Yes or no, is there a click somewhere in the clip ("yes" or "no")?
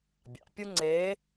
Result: yes